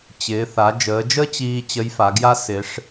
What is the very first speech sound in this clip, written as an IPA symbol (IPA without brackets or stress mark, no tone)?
t͡ɕ